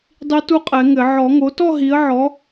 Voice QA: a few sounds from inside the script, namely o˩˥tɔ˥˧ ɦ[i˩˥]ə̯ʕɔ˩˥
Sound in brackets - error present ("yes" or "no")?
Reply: no